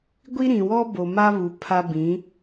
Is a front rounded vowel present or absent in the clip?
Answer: absent